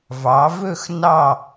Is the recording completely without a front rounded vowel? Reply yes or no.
yes